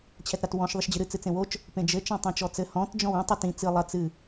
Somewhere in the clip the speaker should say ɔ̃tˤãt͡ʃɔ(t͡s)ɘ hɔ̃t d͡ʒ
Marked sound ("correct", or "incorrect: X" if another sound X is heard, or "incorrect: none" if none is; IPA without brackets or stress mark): correct